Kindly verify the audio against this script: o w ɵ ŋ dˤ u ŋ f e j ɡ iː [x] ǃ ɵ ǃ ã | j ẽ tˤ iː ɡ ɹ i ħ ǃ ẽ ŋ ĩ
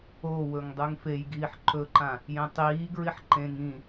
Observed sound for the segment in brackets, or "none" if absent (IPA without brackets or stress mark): ħ